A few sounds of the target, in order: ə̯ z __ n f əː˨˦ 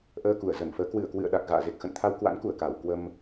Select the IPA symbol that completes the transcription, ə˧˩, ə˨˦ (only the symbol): ə˧˩